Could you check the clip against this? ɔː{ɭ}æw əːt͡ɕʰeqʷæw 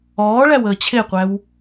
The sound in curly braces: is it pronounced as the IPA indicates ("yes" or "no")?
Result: yes